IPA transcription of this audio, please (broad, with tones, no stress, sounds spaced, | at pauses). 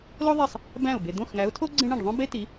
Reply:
l o˥ ðˤ e˥˩ sˤ | b æ̃˥˩ ʊ̯ b e˨ d̪ õ˥˩ x ŋ æ˨˥ ʊ̯ tʰ o˥ ɡ͡ǀ ẽ˥ ɳ ẽ˥˩ ɖ ðˤ õ˥ b e˥ t i˨˥